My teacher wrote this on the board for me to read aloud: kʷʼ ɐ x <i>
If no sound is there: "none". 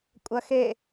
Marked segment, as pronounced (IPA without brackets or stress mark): e